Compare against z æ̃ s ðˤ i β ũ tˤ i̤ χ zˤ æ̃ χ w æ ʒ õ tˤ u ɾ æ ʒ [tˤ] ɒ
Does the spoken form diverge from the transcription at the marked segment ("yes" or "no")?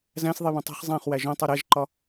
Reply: yes